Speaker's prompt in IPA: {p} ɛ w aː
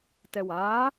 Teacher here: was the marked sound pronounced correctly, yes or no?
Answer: no